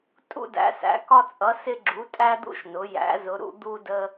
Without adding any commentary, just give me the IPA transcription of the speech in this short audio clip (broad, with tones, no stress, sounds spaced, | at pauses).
tʼ ṵ˧ d æ̰˩˧ s æ̰˩˧ k ɒ˧ t͡sʼ ʌ˩˧ s ɪ˧ ɡ͡ǁ u˩˧ tʼ æ˧ d̪ ṵ˧ ʃ n ʊ˩˧ j æ̰˩˧ z ʊ˩˧ ɾ ṵ˧ d̪ u˧ d ə˧